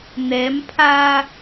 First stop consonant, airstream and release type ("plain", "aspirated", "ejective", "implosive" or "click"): aspirated